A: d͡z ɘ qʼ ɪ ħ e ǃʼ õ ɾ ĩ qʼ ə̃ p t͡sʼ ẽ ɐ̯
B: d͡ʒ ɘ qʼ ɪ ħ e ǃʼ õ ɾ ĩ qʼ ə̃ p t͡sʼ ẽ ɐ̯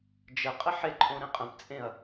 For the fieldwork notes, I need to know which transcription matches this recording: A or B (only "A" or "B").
B